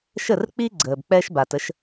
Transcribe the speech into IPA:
ʃ ə˥˩ r k͡p i˥ ɡ͡ǀ əː˩ b k͡p ɛ˥ ʃ b a˩ t ə˩˥ ʃ

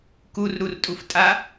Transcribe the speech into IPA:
k u r ɾ u r tʼ u f tʼ a

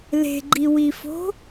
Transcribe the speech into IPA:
l e̤ ɡ͡ǃ i w i f o̤

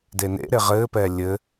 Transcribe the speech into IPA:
d e n ḛ ɾ e ʁ ɘː p ɛː lʲ ɘ

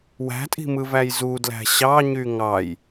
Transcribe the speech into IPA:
w æ̤ tʼ i̤ m ɯ v æ j z u d l æ̤ ɕ ɑ ɲ y ŋ ɑ j

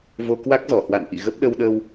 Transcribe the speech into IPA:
v o˧ k w a˦˥ k̚ z ɔ˧˩ h w a̰˧˨ n ʔ ḭ˧˨ ɣ ə˦˥ p̚ ɗ ə˧ w ɗ ə˧ w

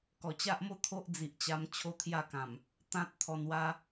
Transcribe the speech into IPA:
k ɔ˨˩ t͡ɕ a˦ ʔ m o˥˧ t̪ʰ o˦ ʔ d͡z i˨ ʔ t͡ɕ a˧ m t͡ɕʰ o˦ t̪ʰ j a˥˧ k ã˨˩ m | t̪ ã˦ t̚ t̪ʰ ɔ˧ n w a˦

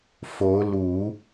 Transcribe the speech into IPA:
f o˧˥ ʊ̯ l u˨˩˦

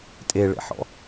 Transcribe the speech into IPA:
tʼ e ɭ ḛ ħ ɔ̰

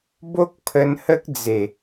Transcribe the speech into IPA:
b o˦ k̚ pʰ ə˧ n h ə˦ k̚ d͡z e˨˩

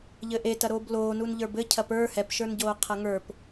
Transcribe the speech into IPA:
ʎ ɘ ʔ e t ɐ ɾ oː b l oː n u n ʎ ə˞ b ɘ cʰ ɐ p ə˞ h ɛ p ʃ ə˞ n ɟ oː qʰ ɐ ŋ ə˞ p

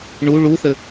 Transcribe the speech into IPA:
ɳ u ɭ u θ ɘ

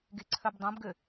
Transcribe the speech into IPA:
ɡ e ǀʰ œ b dˤ õ b ɡ ø

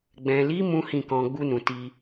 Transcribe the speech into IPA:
ɡ͡b ɛ̃˨ l i˨˦ m ũ˦ h ĩ˦˨ k ɔ̃˧ ɡ͡b u˧ n ũ˨ t i˧

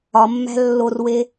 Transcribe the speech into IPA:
ɒ mː æ̤ lː o r w e

